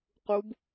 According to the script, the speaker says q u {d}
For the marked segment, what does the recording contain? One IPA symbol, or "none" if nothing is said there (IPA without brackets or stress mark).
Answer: b